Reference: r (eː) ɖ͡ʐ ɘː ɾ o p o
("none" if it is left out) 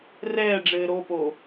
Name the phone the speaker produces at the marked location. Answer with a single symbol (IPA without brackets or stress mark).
ɛː